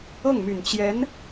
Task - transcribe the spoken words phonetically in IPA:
ɤ˥˩ ŋ m y˨˩ n t͡ɕ j ɛ˧˥ n

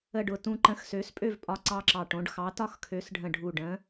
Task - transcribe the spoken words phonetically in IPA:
ə˥˨ ɖ ʊ˥˨ t ũ˦ ǃ ə̃˨˥ x s ø˨˥ s pʼ ø˥˨ v pʼ ɒ˦ ǀ ɑ˦ ǁ ɑ˧˩ ʈ õ˨˥ ɖ x ɑ˨˥ t ɒ˥˨ x kʰ ø˨˥ s ɖʱ ə̃˧˩ ɖʱ u˧˩ ɖ ə̃˨˥

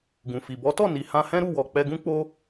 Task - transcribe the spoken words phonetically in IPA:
ɡ ũ˨ f i˨ b ɔ˨˦ t ɔ˦˨ n i˨ h ã˧ h ɛ̃˦ ɾ u˦˨ w ɔ˨ k͡p ɛ˧ ɡ ũ˦ k͡p o˦

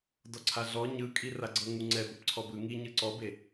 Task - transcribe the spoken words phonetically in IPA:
d ɔ ǀʰ a ɮ ɔ ɲ ɯ kʼ i r a ɡ͡ǀ ɤ ŋ u ŋ͡ǀ ɛ b o p ǀʰ ɔ b ɯ ŋ i ɲ ɯ ǀ ɔ b e

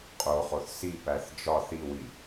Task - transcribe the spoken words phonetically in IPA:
qʼ o χ o θ s i p æ θ d͡ʒ ɒ θ i w i

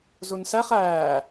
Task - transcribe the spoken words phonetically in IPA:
z u n s æ χ æː

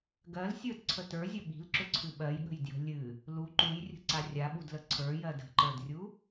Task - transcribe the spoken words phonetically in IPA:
ɡ ɜ l sʲ ə˞ d ǀʰ ə t ə˞ zʲ ə ɓ i̤ l ǁ ʏ ǀʰ ɨ ɓ ɜ j ɠ ə̤ j d j ə̤ lʲ ɨ | l u ǃ u j rʲ ə̤ ǀ a rʲ a ɓ u d l ə ǀʰ ə˞ j ɜ d ə̤ ǃ ə˞ d rʲ u

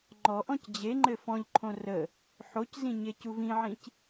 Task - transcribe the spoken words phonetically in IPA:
ŋ͡ǃ ɔ ʔ ɔ̃ c d͡ʑ e ŋ͡ǃ ɘ f ɔ̃ ʎ ǃʰ õ r ə | ħ o c z ĩ ɲ e c u v ĩ ʕ ĩ c

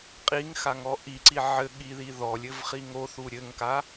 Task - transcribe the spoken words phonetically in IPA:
qʼ i ŋ x a ŋ ɔ ʔ i ǀ i ʕ ɘ ɠ i ð i ð ɔ lʲ ɘ v χ i ŋ o θ u ɾʲ ɘ ŋ k a

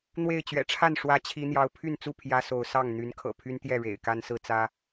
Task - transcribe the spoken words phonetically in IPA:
n̪ w e˥˨ ɪ̯ t͡ɕ ɥ ɛ̰˨˩ ʈ͡ʂʰ a˥˨ n ʂ w ä˦ t͡ɕʰ i˦ n̪ j ɑ˦ ʊ̯ pʰ y˥˨ n t͡s u˥˨ pʰ j ä˦ s o˨˦ ʊ̯ s ɑ˥˨ ŋ n̪ y˨˦ n kʰ ɤ̰˨˩ pʰ y˦ n t̪ j ɛ˥˨ ɻ ḛ˨˩ ɪ̯ k a˦ n s ɹ̩˦ t͡s ä˦

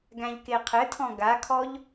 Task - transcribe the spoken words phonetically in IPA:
ɡ æ̃ ʎ k e qʰ ɘ tʰ ɔ̃ ɡ a kʰ ɔ ʎ

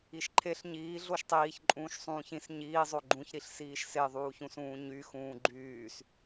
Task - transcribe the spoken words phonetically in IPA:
i ʃ ǃʰ e ɬ ɲ iː ɮ o ʃ tˤ iː ç ǃʼ ũː ʃ sˤ ũː ç ĩ s ɲ iː zˤ o ɡ͡ǃ ũ ç ɾ i ɬ s iː ʃ s e ðˤ uː ç ũ s ũː ɲ y x ũː ɡ͡ǃ yː s

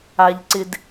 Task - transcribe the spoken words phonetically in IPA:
a˦ ʎ ǀ ɪ˦ d

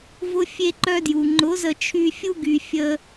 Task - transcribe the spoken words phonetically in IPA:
v ʊ˦ fʲ e˦ ǃ œ˦ d j u˨ ŋ͡ǃ ʊ˨˦ z ə˧ t͡ʃʰ y˧ fʲ u˦ ɡ y˨ fʲ ə˧

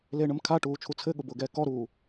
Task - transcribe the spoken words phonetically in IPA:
l eː ɳ ə m kʰ a ʈ uː t͡ʃʰ u t͡sʰ ɘ ɠ ʊ b ʊː ɡ ɛː k ɔ ɾ uː

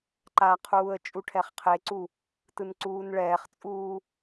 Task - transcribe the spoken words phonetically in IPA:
ǃ a qʰ uː ə̯ t͡ʃʼ u ʈʰ ɛ χ qʰ e ǀ u | t ɯ n ǀ uː n ɭ ɛː χ t͡sʼ uː

